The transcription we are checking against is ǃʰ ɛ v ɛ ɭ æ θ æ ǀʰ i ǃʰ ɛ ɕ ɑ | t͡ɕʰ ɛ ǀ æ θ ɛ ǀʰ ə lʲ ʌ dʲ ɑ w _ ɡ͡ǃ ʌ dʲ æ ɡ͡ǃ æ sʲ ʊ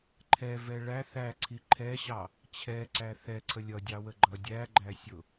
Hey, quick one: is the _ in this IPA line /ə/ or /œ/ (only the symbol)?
ə